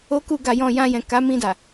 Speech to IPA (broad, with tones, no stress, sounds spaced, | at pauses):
o˦ k u˦˨ ɡ a˨ j ɔ̃˨ j ã˧ j ɛ̃˨ k a˨˦ m ĩ˧ d a˨